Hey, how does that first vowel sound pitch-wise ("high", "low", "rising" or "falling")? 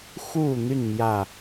falling